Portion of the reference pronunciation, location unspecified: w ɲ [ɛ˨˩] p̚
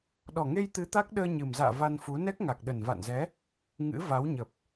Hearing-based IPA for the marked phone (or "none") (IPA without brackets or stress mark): ə˨˩